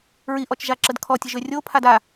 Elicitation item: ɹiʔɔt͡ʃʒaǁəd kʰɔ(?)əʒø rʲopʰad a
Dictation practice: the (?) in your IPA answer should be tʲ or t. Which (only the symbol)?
tʲ